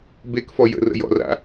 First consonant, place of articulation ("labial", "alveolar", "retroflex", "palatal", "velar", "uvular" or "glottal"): labial